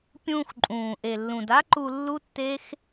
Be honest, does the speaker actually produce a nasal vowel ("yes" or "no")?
yes